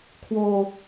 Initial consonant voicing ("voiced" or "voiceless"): voiceless